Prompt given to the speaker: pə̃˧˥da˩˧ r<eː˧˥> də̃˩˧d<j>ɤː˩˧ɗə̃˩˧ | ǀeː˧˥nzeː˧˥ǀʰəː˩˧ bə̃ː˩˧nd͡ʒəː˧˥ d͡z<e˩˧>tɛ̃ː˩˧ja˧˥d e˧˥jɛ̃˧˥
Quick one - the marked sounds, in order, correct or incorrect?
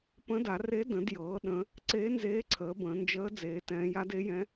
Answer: incorrect: e˧˥, correct, incorrect: eː˩˧

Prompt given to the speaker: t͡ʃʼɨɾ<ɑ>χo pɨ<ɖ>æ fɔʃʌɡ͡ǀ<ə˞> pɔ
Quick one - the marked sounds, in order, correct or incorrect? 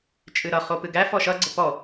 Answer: incorrect: ʌ, incorrect: ɡ, incorrect: ə

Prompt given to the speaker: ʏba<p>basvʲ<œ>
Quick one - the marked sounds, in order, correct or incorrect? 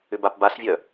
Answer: correct, correct

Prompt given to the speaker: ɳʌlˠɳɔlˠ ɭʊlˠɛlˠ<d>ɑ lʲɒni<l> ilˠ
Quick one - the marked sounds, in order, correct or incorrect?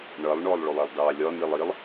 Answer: correct, incorrect: lˠ

